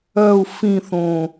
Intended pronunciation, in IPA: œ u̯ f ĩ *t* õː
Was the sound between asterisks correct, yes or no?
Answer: no